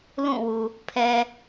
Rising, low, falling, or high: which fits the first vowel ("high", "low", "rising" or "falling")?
falling